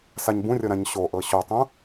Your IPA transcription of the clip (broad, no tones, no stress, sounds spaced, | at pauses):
s a ɲ b ũ rʲ ɤ ɾ ã ɲ ɕ o ʔ ɤ ɕ o tˤ ũ